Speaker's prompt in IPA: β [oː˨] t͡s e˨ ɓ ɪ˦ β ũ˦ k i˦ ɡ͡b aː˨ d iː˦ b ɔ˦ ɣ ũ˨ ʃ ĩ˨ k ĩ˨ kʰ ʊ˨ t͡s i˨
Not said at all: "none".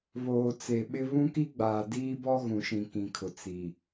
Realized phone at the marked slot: oː˨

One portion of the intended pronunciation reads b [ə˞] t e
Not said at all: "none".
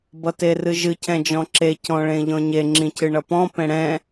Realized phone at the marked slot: ʌ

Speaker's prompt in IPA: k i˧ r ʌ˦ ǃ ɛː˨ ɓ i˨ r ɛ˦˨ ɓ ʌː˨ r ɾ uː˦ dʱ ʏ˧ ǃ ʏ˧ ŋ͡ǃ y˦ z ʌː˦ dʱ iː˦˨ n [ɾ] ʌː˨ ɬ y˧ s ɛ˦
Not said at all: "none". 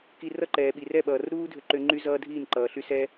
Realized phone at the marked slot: ǃ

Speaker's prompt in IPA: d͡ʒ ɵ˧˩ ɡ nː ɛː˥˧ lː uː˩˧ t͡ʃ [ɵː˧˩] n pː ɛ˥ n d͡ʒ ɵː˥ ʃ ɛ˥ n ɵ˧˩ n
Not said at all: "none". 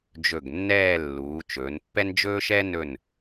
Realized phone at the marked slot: ɵː˩˧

